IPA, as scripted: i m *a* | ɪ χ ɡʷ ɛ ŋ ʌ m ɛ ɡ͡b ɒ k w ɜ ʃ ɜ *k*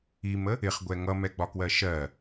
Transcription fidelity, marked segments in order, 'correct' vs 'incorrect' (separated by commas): incorrect, incorrect